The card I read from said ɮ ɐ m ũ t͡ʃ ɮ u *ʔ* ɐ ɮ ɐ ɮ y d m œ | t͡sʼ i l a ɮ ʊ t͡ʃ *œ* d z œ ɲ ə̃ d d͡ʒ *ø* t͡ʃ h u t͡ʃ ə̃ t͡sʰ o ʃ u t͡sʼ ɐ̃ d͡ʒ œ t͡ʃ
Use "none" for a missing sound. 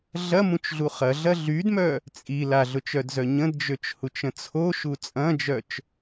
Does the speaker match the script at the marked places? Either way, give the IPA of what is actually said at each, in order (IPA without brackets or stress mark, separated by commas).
χ, œ, ø